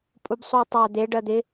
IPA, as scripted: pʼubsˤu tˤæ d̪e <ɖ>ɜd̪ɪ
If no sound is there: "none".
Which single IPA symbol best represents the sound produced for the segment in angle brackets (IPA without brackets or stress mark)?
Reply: ɖ